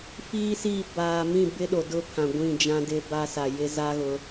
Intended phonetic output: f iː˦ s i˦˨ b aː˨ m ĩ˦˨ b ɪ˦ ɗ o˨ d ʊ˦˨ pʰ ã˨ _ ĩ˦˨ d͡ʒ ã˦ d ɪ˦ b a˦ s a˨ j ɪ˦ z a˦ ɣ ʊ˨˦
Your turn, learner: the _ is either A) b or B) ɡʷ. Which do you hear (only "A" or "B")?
B